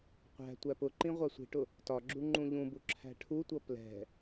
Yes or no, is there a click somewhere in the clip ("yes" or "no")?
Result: yes